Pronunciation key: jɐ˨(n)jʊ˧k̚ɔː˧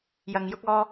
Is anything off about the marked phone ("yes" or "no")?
yes